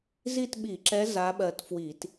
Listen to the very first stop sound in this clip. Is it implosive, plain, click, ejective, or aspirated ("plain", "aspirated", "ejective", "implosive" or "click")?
plain